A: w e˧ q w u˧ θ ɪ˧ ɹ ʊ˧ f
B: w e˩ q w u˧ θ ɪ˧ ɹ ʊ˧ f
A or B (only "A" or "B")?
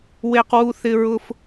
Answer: A